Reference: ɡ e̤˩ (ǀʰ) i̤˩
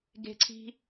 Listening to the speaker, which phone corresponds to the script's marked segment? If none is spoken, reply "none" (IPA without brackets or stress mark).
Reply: ǀʰ